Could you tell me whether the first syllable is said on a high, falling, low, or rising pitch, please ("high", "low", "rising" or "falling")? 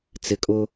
low